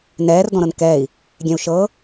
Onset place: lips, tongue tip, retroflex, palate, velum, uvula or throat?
tongue tip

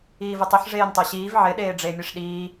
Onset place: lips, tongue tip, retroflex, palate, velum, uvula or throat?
lips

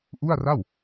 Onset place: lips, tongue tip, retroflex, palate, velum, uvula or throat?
throat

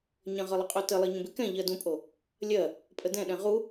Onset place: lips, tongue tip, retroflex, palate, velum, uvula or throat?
palate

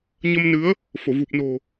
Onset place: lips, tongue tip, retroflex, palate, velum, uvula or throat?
palate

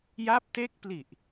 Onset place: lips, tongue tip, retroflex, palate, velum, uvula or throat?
palate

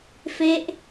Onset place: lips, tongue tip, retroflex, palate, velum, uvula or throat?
lips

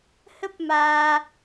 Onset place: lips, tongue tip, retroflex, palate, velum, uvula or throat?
throat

